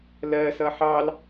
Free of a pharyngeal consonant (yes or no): no